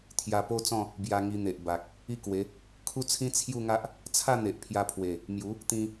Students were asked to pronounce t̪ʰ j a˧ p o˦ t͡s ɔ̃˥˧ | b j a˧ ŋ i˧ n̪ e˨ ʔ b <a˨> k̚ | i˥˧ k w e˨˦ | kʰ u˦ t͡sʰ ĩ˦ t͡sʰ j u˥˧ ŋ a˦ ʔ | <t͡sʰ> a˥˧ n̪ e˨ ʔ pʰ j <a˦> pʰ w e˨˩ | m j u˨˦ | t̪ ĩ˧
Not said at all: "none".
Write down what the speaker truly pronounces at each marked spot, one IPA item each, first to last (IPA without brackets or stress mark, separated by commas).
a˨, t͡sʰ, a˧